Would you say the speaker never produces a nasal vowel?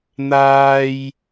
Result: yes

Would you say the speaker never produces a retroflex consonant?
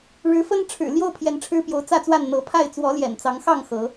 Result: no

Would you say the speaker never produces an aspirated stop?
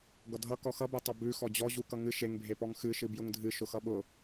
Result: yes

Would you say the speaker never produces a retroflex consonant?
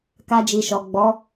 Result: yes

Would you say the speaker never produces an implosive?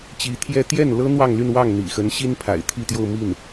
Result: yes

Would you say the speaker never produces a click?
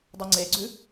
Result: no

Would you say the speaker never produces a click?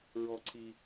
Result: no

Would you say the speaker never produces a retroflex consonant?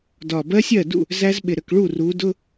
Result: no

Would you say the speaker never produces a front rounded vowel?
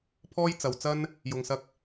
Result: yes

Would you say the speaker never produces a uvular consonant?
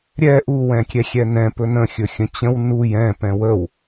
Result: yes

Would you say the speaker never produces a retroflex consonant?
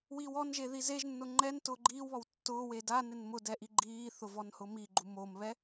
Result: yes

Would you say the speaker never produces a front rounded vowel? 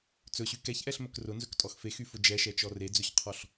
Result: no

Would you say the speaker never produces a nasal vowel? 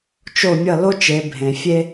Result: no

